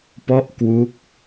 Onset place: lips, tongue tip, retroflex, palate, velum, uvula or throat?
lips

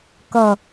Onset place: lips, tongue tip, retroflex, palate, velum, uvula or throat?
velum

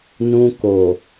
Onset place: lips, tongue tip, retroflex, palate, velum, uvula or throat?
tongue tip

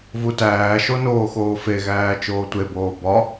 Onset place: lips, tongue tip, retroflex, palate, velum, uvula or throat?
lips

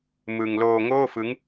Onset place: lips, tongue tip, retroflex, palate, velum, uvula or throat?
lips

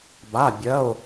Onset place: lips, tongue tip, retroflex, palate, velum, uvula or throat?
lips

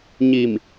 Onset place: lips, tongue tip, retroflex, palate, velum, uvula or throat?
palate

